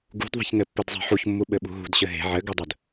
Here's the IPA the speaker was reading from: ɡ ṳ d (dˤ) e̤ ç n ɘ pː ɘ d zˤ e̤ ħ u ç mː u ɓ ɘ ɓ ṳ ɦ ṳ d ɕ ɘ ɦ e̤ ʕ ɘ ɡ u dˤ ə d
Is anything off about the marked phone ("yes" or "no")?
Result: yes